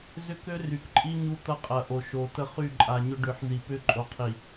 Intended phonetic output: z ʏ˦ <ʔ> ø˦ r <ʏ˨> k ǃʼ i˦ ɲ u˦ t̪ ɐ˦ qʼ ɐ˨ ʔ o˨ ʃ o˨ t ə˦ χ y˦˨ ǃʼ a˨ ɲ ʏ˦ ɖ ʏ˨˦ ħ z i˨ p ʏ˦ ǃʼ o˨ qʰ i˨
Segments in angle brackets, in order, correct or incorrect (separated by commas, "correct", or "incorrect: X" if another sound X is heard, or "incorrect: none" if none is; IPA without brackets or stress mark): incorrect: k, incorrect: y˨